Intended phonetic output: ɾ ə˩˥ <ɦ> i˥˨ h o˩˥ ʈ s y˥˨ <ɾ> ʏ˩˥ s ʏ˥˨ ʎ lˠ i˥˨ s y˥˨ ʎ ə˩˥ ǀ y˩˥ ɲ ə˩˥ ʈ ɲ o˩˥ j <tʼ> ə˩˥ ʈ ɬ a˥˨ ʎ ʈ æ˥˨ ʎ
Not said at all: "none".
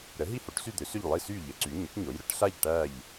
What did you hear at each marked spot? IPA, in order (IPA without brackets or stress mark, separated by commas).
ɦ, d̪, ɾ